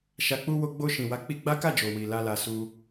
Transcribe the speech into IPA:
ʃ a˨ k͡p u˧ w o˧ ɡ͡b o˧ ʃ ĩ˨ w a˨˦ k͡p i˧ ɡ͡b a˦ k a˦˨ d͡ʒ o˨ w i˨ l a˧ l a˧ s u˧

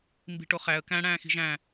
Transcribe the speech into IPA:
m b i̤ ʈ o χ æ ə̯ k æ̃ ɽ æ̃ː x i̤ ʒ æ̃

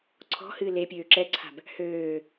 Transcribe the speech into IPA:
ǀʰ ɔ̤ h ɨː l e pʲ øː ǁ ɛ ǀʰ a̤ b | h øː

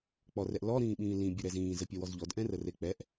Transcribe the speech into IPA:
k͡p ɔ r ɛ ʔ l ɔ ɾ ĩː ɓ ĩː l ĩ bʲ e ɾ ɛ z ĩː z ə pʲ ɔ w ɔ z ʎ ɔ d ʔ ɛ̃ r ə r e k͡p ɛ ʔ

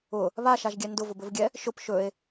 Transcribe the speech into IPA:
ʊ | β a ʃ a ʒ ɡʲ ɛ n d ʊ v ʊ b ɵ v ɡʲ ɛ | ʃ ʊ p ʃ ɵ e̯

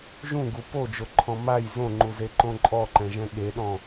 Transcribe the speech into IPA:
ʒ ũ ɡ u p o d͡ʒ o ǃʰ ɔ̃ m a j z õ ŋ͡ǃ u z e ǃ õ ǃʼ ɔ ǃ ɛ̃ ʒ ɛ̃ ɠ e ɗ ɔ̃

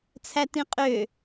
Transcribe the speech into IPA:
t͡sʰ æ t ĩ qʼ ø

